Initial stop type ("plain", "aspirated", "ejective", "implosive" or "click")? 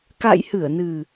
plain